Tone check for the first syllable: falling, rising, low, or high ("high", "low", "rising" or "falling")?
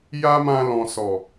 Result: high